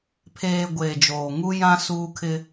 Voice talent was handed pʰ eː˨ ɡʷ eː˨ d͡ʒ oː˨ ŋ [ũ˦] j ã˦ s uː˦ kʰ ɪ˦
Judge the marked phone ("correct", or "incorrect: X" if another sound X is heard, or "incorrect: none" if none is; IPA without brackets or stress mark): incorrect: u˦